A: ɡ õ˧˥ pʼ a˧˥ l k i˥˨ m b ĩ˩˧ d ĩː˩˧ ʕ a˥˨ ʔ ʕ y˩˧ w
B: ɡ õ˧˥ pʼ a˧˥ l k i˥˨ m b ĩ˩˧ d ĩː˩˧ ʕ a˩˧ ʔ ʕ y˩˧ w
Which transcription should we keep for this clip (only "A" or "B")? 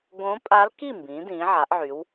B